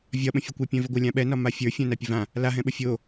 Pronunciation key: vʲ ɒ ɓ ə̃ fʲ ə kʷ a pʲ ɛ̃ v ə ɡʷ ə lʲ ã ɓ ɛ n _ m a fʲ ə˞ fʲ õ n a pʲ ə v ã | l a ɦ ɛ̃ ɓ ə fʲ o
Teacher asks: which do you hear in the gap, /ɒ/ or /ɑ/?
ɒ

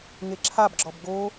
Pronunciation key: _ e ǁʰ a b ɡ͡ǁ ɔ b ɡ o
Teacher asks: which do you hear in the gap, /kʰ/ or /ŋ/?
ŋ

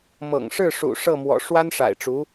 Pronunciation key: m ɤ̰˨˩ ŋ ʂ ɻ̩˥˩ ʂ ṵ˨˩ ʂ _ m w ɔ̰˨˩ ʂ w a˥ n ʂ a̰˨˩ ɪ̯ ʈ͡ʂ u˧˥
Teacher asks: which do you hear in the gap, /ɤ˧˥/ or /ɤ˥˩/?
ɤ˥˩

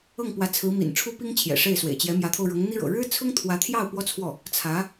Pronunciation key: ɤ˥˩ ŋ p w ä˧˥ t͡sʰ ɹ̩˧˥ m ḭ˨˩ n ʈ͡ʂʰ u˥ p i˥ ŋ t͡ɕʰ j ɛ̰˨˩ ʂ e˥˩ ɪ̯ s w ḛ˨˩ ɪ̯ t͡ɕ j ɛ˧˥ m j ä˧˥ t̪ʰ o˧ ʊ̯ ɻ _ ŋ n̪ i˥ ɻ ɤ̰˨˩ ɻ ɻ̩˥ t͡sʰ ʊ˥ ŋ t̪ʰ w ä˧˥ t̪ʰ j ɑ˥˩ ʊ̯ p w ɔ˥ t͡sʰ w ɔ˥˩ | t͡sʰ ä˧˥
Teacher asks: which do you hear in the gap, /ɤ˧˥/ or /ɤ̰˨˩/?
ɤ˧˥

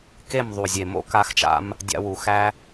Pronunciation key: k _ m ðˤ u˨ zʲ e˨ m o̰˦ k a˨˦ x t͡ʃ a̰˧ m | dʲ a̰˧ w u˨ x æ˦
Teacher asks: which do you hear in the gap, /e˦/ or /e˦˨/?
e˦˨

